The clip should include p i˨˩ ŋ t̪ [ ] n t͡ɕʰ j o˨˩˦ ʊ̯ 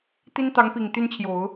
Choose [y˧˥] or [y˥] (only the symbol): y˥